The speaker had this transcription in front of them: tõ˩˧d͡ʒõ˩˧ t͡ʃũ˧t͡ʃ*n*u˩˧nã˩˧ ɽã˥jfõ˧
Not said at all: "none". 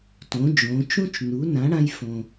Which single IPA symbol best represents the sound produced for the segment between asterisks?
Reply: n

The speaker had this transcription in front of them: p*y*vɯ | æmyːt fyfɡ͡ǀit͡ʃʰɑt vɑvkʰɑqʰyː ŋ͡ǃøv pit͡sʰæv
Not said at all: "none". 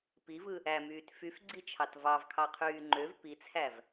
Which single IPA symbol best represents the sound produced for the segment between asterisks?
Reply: i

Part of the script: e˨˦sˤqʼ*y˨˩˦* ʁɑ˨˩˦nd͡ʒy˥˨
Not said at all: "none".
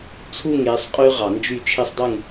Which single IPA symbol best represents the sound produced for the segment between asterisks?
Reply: y˦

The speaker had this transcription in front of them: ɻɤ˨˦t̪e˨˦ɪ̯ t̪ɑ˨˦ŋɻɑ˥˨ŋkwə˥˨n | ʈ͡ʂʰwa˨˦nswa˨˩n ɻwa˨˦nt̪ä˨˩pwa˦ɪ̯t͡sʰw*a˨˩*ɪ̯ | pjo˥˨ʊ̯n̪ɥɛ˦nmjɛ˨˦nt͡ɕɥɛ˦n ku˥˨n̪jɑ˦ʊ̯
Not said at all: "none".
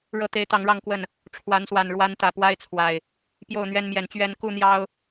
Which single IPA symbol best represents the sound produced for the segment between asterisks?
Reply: a˨˩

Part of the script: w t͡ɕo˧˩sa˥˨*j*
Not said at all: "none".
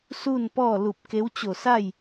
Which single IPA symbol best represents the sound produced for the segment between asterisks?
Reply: j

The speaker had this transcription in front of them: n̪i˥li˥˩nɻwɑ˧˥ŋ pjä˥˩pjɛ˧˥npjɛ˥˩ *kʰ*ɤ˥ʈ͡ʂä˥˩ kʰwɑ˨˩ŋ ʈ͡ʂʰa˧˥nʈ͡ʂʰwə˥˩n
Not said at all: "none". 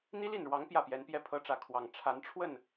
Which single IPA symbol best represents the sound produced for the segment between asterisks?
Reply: pʰ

